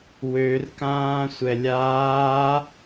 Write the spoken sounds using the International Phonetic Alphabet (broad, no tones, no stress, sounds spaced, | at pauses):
w ø r k ãː sʷ ɛ lʲ aː